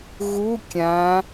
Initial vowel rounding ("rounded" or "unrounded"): rounded